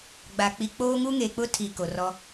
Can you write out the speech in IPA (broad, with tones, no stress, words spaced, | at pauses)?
ɡ͡ba˨k͡pi˨k͡poː˦ ŋu˦ŋeː˨k͡pʊ˦ tʰi˨ ko˨rɔ˦